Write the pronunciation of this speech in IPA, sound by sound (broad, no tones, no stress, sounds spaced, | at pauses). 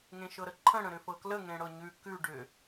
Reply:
ŋ ẽ ʃ ɤ ɾ ə ǃʰ ə̃ ɽ ə̃ ɾ ʏ f ɤ k l ə ŋ ẽ ɽ ɤ ɲ ʉ k ʉ ɖ ʏ